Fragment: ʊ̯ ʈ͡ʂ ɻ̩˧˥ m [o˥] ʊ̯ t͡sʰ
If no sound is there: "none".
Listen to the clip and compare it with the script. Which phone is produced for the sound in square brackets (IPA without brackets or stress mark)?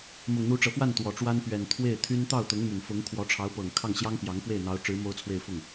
o˥